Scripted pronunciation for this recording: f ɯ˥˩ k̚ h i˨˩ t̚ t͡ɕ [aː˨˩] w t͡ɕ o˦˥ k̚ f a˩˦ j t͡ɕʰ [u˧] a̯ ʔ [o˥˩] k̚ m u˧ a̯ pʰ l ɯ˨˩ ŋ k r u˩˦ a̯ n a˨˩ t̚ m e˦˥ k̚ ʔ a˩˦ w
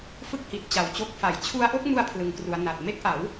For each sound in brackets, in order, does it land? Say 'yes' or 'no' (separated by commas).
no, yes, yes